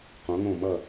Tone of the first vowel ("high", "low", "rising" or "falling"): rising